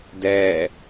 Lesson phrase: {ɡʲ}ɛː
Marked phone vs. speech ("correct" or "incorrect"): incorrect